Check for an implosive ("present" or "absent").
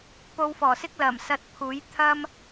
absent